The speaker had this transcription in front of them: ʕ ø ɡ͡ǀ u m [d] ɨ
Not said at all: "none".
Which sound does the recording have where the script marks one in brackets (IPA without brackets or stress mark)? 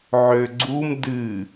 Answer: d